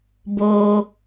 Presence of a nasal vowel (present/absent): absent